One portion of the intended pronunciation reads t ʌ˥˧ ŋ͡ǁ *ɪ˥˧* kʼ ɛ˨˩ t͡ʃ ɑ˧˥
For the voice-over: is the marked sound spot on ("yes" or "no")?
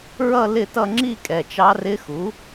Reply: no